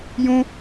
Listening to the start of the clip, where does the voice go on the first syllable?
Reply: high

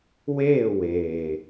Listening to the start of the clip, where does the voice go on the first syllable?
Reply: falling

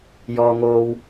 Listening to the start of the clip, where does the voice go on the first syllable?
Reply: low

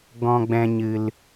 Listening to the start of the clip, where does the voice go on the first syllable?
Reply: low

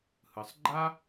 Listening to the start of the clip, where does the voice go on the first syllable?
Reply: low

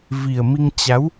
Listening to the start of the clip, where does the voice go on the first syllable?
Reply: low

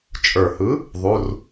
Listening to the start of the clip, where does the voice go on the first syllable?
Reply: low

